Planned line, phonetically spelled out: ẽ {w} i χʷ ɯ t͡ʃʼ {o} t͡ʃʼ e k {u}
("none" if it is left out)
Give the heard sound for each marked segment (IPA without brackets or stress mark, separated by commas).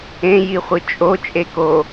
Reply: j, o, o